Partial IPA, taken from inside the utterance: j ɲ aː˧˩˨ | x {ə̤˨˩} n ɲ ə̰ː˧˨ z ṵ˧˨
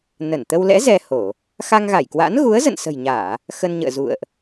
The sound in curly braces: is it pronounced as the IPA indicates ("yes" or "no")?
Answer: no